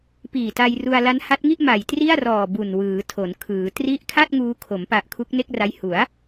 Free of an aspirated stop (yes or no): no